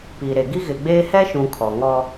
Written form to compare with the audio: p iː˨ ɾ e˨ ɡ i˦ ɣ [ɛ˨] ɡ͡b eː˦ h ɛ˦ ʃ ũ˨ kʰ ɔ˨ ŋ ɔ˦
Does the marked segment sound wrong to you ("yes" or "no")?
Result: yes